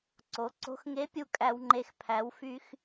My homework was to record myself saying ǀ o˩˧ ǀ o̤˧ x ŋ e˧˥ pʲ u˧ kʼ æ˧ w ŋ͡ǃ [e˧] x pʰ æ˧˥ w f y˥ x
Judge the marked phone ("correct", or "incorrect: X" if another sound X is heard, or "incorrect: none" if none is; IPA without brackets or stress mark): correct